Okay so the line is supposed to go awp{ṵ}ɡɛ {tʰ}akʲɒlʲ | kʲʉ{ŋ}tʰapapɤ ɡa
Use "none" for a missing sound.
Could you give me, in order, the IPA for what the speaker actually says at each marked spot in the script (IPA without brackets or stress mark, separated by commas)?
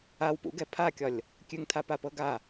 ṵ, pʰ, ŋ